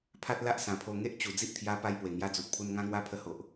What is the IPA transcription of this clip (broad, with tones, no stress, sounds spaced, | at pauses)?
pʰ a˦ t̚ l a˦ ʔ s ã˨˩ pʰ o˧ ŋ e˦ ʔ t͡ɕ u˨˩ d͡z i˦ ʔ t̪ʰ j a˧ p a˧ j p w e˨˩ ŋ j a˦ d͡z u˨ t̚ pʰ u˦ n ŋ ã˦ ŋ w a˦ pʰ ə˧ h o˨ ʔ